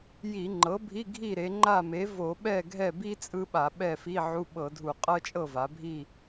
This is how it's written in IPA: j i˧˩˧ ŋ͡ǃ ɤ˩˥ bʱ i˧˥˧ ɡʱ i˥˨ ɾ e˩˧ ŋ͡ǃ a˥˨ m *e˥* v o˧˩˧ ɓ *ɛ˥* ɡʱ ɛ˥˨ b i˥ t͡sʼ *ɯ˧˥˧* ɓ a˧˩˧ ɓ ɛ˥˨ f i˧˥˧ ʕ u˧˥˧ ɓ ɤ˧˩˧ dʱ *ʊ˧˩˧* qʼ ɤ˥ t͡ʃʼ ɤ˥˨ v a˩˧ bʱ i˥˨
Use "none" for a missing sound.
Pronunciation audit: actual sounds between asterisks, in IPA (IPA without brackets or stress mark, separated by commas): e˩˥, ɛ˥˨, ɯ˥, u˧˩˧